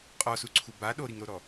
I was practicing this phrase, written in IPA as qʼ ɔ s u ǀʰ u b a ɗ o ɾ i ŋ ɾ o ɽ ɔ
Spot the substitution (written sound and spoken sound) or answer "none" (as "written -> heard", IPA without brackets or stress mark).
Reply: ɽ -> ɾ